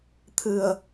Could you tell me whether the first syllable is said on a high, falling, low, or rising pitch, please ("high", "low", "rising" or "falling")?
low